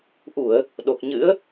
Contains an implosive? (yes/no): yes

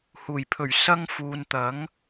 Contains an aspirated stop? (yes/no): yes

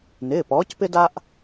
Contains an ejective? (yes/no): no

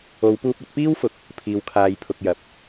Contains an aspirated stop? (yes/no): yes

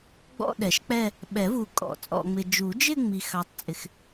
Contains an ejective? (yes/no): yes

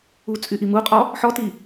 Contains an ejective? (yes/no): yes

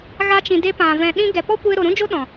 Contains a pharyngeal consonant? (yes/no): no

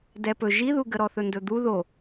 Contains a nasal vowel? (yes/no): no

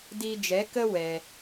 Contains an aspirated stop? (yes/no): no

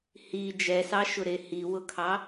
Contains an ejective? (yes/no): no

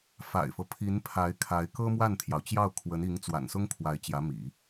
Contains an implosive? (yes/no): no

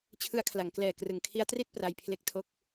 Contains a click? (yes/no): no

